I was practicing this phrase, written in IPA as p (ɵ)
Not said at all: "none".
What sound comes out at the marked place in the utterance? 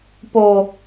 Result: o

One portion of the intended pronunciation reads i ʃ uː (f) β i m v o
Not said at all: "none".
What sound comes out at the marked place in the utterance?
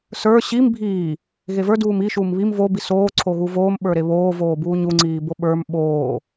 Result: m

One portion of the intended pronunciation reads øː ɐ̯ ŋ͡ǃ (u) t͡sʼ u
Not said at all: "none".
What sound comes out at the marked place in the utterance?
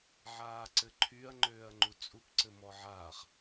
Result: u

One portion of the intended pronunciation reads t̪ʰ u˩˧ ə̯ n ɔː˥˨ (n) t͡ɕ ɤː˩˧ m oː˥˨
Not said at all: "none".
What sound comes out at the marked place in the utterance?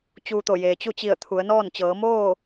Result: n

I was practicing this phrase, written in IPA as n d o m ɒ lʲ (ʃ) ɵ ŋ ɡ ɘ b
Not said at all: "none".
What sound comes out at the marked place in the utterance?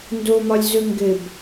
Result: z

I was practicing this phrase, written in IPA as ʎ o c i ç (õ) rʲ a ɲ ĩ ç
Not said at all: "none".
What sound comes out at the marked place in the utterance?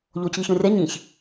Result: õ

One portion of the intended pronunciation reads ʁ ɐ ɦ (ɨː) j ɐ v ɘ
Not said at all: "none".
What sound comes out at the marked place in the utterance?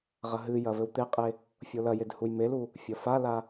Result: ɨ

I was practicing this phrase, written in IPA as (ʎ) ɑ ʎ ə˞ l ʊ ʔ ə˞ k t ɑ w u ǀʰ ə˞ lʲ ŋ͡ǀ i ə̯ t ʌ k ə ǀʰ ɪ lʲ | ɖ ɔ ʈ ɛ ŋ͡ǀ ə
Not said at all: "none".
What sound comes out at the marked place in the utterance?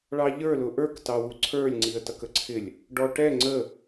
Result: ɭ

